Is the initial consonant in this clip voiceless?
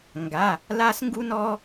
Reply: no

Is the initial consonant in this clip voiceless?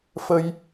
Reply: yes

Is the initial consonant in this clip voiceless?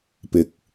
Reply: yes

